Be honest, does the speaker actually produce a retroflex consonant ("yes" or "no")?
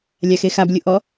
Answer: no